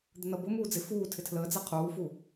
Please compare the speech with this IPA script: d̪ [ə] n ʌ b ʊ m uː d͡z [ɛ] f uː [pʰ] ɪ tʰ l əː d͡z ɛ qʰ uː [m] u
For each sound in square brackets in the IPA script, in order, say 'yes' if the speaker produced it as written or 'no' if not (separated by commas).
yes, no, no, no